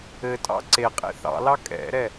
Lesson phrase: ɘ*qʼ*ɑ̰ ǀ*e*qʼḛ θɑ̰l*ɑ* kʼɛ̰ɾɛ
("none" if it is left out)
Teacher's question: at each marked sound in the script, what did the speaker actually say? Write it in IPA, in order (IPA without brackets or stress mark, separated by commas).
tʼ, e, ɑ